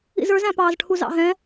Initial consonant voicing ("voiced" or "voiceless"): voiced